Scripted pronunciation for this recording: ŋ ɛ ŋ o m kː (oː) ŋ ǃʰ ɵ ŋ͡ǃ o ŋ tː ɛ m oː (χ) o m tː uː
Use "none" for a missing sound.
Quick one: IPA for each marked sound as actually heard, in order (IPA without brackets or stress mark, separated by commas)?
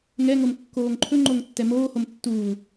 oː, h